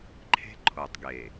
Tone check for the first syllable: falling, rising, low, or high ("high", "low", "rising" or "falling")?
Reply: high